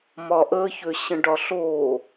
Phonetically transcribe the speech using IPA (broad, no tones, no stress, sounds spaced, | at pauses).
m ɒ ʔ ə ç ø ɕ ə̃ ɖ ɒ ɬ o